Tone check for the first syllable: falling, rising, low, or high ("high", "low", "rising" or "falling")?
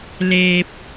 low